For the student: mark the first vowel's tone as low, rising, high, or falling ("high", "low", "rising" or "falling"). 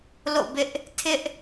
falling